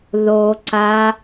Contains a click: yes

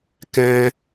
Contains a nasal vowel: yes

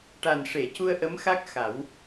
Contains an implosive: no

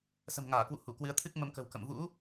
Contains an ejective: no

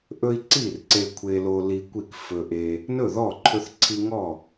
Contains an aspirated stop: yes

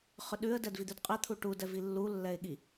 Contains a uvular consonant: yes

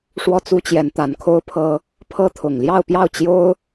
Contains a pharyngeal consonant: no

